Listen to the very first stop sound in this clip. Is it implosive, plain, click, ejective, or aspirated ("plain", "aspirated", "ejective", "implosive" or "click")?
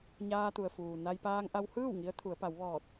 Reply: plain